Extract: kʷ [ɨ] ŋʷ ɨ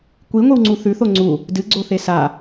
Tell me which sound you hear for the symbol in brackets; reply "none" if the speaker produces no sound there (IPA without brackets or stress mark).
i